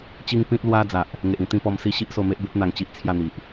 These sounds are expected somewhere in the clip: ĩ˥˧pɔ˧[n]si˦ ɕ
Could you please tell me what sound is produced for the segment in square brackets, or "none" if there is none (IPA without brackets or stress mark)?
m